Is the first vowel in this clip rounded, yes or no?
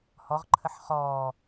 yes